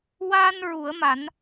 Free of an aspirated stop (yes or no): yes